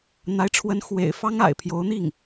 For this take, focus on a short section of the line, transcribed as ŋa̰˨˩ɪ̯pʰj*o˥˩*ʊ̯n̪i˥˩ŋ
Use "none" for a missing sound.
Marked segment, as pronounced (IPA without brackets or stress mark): o˧˥